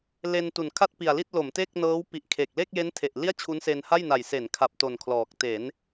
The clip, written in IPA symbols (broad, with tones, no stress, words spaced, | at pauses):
le˧ntu˨˩nkʰa˥˩t̚ pi˨˩a̯li˥˩t̚ lo˩˦mte˥˩k̚nɤː˦˥w pi˨˩ʔ kʰe˨˩k̚ le˥˩k̚je˦˥ntʰe˨˩ʔ li˥˩a̯t͡ɕʰu˦˥nse˧nha˥˩j na˨˩jse˩˦nkʰa˨˩p̚ to˨˩nkʰlɔː˨˩k̚ te˩˦n